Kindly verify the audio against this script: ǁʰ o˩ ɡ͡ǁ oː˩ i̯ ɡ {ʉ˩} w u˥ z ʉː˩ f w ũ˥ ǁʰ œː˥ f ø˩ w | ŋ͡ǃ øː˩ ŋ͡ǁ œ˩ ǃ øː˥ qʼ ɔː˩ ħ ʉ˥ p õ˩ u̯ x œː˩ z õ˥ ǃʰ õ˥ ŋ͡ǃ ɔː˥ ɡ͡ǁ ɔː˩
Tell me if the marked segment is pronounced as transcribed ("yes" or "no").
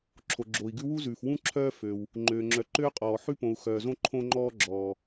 no